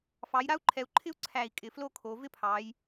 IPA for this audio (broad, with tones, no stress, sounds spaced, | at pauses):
f ɑ˩˧ j ɾ a˥ u̯ ǃʰ ɛ˩˧ u̯ ǃʰ ɪ˥ u̯ ǀʰ æ˧˩ i̯ kʼ ɪ˩˧ f l o˥˧ kʰ o˩˧ v ɪ˥˧ pʰ ɑ˩˧ j